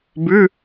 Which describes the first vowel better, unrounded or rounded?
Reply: rounded